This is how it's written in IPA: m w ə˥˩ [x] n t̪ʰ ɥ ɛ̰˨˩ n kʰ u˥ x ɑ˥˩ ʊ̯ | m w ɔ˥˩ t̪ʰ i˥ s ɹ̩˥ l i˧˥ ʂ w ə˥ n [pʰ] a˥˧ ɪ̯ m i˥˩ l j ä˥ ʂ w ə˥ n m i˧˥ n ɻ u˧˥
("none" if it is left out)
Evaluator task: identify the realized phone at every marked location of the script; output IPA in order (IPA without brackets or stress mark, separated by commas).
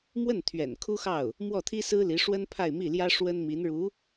none, pʰ